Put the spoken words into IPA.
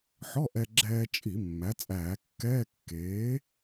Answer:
ħ ɔ˧˥˧ ʔ ɛ˧ ɡ͡ǁ ɛː˧ t͡ʃʼ i˧˩˧ mː æ˩˥ t͡sʼ æː˧˩˧ kː ɛː˧˥˧ kː eː˩˥

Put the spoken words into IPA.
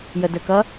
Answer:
j ə d ə k ʌ

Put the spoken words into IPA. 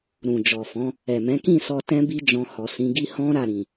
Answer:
ɾ ũ˨ d͡ʒ ɔ˨ f ɔ̃˨˦ | ɛ˨ m ɛ̃˨˦ k ĩ˦˨ s ɔ˧ t ɛ̃˦ b i˦ d͡ʒ ɔ̃˧ h ɔ˨ s ĩ˨˦ ɡ i˦ h ɔ̃˦ ɾ a˦˨ ɾ ĩ˨

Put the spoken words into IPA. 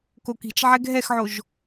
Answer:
k o k i̤ t͡ʃ ʕ ɛ ɡʱ ɛ x ʕ o ʒ

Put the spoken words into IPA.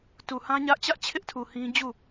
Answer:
t u˨ h ã˦ ɲ ä˦ ʔ t͡ɕ ä˦ ʔ t͡ɕʰ ɪ˦ ʔ tʰ u˨ h ĩ˦ d͡ʑ u˦˨

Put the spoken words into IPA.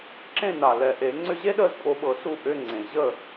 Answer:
ǁ ẽ˥˨ n a˨˩ l ɛ˨˩ ʔ e˨˩˦ ŋ͡ǀ ʏ˥ ʑ e˥ ɗ əː˥˨ z pʼ o˨˦ ɓ ɤ˨˩˦ s u˥ ʔ ʏ˧˥˧ ŋ͡ǀ ẽ˨˩ ʑ ə˥˨

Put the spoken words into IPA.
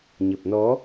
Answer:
ɲ ə˨˩ p̚ n ɔ˨˦

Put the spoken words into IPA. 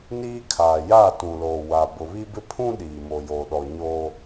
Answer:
n iː˦ kʰ aː˨ j aː˦˨ t ũ˨ l oː˨ w a˨ b ʊ˨ β i˦ b ɪ˦ pʰ ũ˦ ɗ iː˨ m o˨ j oː˨ ɗ ɔ˨ ɲ oː˦

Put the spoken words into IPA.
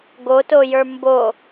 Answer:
ɡ o t o j ə˞ m b o

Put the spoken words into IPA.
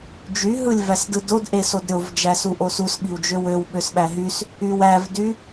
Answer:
d͡ʒ y ɦ ɯ lʲ v æ s d ɯ d o d ʔ e s o d ɾʲ o v d͡ʒ æ s u ʔ o s u s ɓ i w d͡ʒ ø w ø w ɓ ø s ɓ æ ɦ y s | y w æ v d y

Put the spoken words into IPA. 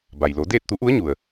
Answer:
b a˩ j l o˩˧ d eː˥˨ t̚ t̪ u˧˥ ʔ u˧˥ ə̯ ɲ u˩ ə̯

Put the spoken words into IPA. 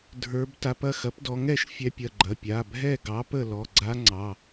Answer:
dʱ ə˞˦˥ b t a˦˥ p ɐ˩˧˩ x ɐ˨˥ p d ɔ˨˥ ŋ ɛ˥˨ ʃ fʲ ɛ˦˥ pʲ ɐ˩˧˩ ɡ͡ǃ ɐ˩˧˩ pʲ a˩˧˩ bʱ ɛ˥˨ ɡ ɑ˨˥ p ə˥˨ l ɔ˩˧˩ ɡ͡ǀ a˦˥ ŋ͡ǀ ɑ˩˧˩

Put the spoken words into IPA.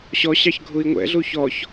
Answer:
ɕ ɔ ɕ ɑ ç ɡʱ u i̯ ŋʷ ɛ̰ ɮ u ç ɔ ç

